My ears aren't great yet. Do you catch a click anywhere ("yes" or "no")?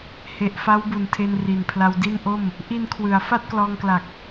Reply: no